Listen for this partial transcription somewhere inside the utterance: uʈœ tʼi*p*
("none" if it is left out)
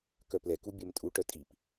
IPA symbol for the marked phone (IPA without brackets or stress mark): p